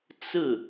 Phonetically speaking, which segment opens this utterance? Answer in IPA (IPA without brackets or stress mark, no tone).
t͡s